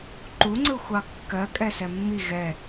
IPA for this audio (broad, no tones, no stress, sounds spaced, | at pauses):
ǃ u ŋ͡ǀ ɯ xʷ ɑ kː ɜ kʼ ɛ s ɛ mː i ɣ ɛ